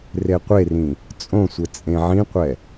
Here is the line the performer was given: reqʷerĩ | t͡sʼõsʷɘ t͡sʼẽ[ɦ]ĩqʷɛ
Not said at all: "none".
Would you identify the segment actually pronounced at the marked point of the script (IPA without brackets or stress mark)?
ʕ